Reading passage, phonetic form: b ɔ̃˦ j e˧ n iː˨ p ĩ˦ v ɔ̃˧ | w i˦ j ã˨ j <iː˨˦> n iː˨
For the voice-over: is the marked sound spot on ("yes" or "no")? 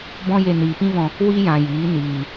yes